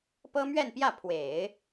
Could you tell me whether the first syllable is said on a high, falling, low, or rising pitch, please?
high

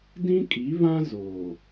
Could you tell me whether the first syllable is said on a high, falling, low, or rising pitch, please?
high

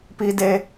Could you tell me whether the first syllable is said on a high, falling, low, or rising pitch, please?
high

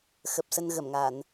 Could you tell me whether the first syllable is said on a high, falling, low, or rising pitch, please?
low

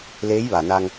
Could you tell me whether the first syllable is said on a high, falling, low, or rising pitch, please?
rising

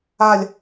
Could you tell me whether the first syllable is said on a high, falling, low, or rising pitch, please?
falling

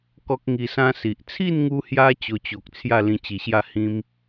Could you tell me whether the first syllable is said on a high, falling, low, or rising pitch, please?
high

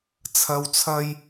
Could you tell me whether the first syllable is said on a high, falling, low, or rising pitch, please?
low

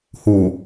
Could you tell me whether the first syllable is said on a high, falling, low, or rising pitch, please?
low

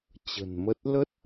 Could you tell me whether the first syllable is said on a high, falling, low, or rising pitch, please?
low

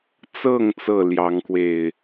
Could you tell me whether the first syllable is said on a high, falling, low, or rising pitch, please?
falling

